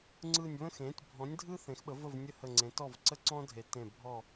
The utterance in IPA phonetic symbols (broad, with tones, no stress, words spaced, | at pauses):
ŋ͡ǀɯ˧˩nʲβə̃˥˨xẽ˩˥tʲ bʱɔ̃˩˥nʲdʱɯ˥ θẽ˩˥xɓə˩˥və˥˨v nʲə˥˨hə˧˩ŋ͡ǀẽ˩˥ tɔ˥˨v ǀə˥ǀɔ̃˥dʱe˨˩˦ tẽ˧˩ bʱɔ˥˨